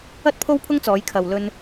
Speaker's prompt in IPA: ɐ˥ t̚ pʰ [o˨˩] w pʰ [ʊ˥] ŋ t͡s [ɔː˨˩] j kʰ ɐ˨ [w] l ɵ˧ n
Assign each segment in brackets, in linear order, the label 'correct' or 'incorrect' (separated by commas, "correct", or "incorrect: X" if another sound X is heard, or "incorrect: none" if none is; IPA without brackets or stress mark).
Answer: incorrect: o˥, correct, incorrect: ɔː˨˧, correct